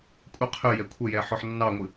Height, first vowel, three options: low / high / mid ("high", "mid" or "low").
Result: mid